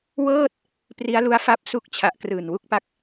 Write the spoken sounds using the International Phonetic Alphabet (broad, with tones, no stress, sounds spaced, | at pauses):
w ɤː˥˩ t̚ | p r i˦˥ a̯ l u˦˥ a̯ f a˦˥ p̚ s u˦˥ k̚ t͡ɕʰ a˨˩ ʔ k r ɯː˨˩ n w u˦˥ k̚ p a˦˥ k̚